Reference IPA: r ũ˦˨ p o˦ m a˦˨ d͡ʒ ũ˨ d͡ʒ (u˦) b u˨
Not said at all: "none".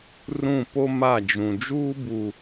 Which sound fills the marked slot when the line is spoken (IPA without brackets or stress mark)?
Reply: uː˦